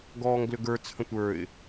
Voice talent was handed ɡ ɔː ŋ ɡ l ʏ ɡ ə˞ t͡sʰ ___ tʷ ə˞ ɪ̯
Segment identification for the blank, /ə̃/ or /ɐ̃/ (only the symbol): ə̃